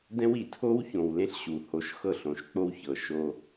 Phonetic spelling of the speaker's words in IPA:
dɛ̃˦w i˨ tʰo˦wçõ˨wlẽ˦ɬɕu˨ ho˦ʃ xɤ˦˨ɬõ˨˦ʃk͡po˦w çɤ˨ʃo˦

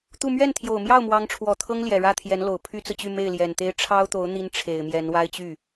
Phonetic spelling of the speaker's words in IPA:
t̪u˥˧ mɥɛ˥˩nt̪ʰjo˨˩ʊ̯ mjɑ˥˩ʊ̯ mwɑ˧˥ŋʈ͡ʂʰwɔ˨˩t̪ʰɤ˥ŋ ljɛ˨˩ɻä˥˩t̪ʰjɛ˧˥nlo˨˩ʊ̯ pʰy˥t͡sɹ̩˨t͡ɕy˥˧ me˥˩ɪ̯ljɛ˨˩nt̪e˥ɪ̯ ʈ͡ʂʰɑ˥ʊ̯t̪o˧˥ʊ̯ n̪i˥nʈ͡ʂʰe˨˩ɪ̯mjɛ˧˥n wa˥ɪ̯t͡ɕy˥˩

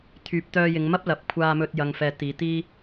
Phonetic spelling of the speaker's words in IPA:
t̪ʰyː˨p̚ t̪œː˧jɪ˨˧ŋmɐ˥p̚lɐ˨˥p̚ kʷʰaː˧mɵ˧t̚ jɐ˨ŋfɛː˨ t̪iː˨˧t̪iː˥

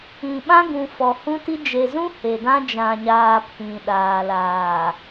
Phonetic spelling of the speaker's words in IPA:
ĩ˨ ɓã˦ɡũ˨ fɔ˨hũ˦ti˦ d͡ʒe˨zũ˦ he˨dã˦ d͡ʒã˨ɲaː˨ pʰĩ˨ ɗaː˨laː˨

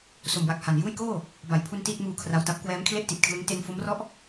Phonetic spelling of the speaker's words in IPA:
so˨˩mwa˨˩k̚ha˨˩n juː˥˩jkoː˥˩ | ba˩˦jpʰu˧n tiː˥˩t̚muː˧kʰra˧wta˦˥p̚ kwɛː˦˥mkʰle˥˩ʔti˨˩t̚kʰlɯ˦˥ŋ te˧nfo˦˥mrɔ˥˩ʔ

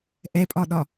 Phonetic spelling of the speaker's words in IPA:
ʔɛpʼɒɗɒ

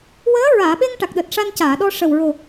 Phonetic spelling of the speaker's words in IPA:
wəː˧˥ɹaː˨˩˨ɓe˧ŋ ʈa˨˩k̚ɗəː˨˩t̚ʂa˧n caː˨˩˨ɗɔ˧ ʂə˨˩wɹo˨˩

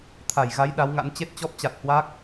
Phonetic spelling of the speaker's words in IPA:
t̪ʰa˧˩jɣa˨˦j ɗa˨˦wŋa̰˧˥n t͡ɕe˦˥t̚t͡ɕɔ˦˥p̚t͡ɕa˨˩t̚ hwa˦˥k̚

